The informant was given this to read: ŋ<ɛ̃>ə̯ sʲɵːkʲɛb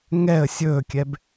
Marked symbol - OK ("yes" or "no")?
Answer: no